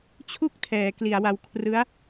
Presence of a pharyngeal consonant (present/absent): absent